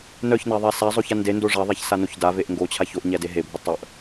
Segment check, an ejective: absent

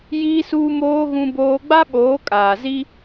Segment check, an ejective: present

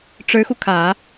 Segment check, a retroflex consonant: present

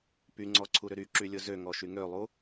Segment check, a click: present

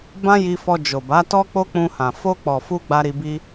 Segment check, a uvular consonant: absent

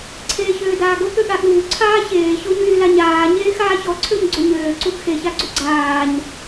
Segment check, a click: present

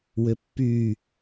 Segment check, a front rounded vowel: present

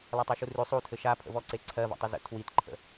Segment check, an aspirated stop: present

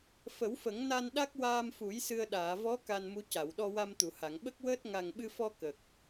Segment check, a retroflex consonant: absent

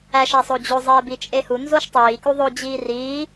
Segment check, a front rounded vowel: absent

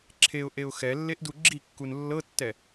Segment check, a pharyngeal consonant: absent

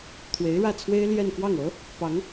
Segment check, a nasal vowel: absent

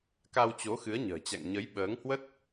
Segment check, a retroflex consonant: absent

